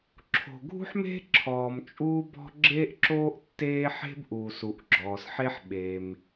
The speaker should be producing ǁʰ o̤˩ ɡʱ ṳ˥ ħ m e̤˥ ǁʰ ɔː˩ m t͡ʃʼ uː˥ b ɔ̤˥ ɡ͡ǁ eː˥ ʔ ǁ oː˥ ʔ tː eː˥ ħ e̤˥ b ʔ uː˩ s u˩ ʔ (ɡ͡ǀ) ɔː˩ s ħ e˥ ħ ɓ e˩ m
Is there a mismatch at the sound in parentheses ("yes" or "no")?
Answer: yes